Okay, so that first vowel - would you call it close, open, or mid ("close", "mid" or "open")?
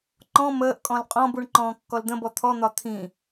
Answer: mid